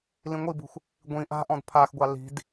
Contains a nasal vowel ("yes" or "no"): yes